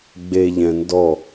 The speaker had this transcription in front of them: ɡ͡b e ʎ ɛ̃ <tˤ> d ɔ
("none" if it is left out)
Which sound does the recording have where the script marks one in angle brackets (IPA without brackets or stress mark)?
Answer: n